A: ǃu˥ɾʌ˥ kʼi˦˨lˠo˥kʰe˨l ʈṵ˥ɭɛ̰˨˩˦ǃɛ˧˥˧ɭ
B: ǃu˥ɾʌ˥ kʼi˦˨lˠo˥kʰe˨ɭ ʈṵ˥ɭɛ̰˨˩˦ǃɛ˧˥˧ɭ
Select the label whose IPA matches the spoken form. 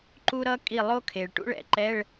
B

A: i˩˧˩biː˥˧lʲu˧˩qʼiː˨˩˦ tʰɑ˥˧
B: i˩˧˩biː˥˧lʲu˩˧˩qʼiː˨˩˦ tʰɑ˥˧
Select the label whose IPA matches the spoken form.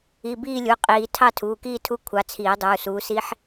B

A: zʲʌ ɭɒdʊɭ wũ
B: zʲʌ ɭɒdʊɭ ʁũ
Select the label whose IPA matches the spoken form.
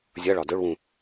A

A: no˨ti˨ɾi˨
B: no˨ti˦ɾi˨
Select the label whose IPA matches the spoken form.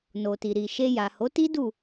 A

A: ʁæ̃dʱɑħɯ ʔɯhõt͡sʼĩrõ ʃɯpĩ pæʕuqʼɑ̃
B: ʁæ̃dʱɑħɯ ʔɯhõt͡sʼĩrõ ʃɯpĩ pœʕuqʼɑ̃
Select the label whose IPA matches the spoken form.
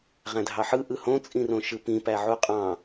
A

